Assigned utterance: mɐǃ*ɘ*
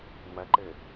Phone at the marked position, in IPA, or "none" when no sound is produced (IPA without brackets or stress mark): ɘ